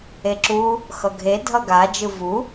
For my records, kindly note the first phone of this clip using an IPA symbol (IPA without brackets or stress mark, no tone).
e